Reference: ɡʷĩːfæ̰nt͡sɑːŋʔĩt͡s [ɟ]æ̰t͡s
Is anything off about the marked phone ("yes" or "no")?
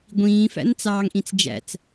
yes